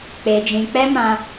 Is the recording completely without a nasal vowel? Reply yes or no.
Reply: no